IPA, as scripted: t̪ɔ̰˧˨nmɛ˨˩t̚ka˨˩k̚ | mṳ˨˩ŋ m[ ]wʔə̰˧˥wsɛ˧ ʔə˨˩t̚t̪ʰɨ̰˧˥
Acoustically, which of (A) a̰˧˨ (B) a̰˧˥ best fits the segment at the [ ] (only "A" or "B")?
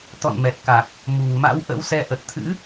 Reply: B